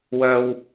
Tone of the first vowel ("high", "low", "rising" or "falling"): low